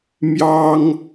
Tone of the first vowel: high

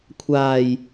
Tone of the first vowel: low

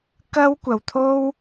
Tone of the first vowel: high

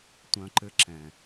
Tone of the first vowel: low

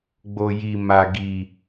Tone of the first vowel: low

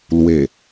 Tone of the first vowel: low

